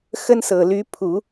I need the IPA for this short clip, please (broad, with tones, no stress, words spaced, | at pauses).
xə˥nsɤ˨˩ly˧˥pʰu˨˩˦